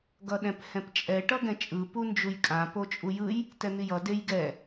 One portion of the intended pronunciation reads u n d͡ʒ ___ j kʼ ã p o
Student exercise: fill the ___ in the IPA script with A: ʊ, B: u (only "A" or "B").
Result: B